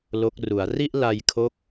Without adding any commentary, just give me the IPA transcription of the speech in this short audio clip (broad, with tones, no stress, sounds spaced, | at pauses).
l o˦˥ k̚ r u˩˦ a̯ r i˥˩ ʔ l a˧ j kʰ o˦˥ k̚